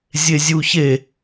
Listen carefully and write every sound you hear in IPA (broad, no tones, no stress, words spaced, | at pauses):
zʲezʲuçe